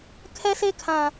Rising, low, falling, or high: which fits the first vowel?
high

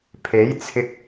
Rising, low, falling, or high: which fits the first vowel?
rising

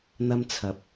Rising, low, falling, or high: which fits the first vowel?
high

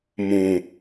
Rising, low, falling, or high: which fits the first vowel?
low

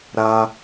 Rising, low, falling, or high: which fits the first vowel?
high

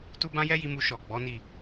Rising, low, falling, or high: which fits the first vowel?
high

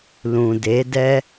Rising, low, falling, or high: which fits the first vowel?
low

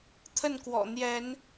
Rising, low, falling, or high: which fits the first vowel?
falling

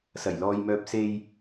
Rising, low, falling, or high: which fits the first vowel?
low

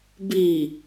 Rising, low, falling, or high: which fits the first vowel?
low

